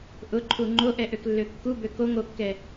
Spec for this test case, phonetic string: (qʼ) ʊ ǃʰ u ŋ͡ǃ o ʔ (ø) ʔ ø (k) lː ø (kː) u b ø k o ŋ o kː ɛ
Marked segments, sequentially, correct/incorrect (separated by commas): incorrect, incorrect, correct, correct